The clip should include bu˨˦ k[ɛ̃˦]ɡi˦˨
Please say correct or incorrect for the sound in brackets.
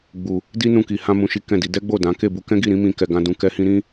correct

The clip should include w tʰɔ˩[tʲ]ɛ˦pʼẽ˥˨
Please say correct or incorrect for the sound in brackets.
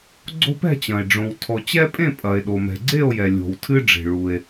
incorrect: t͡ɕ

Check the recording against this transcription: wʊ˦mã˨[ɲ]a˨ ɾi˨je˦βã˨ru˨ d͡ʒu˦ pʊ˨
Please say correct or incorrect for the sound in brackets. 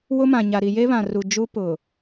correct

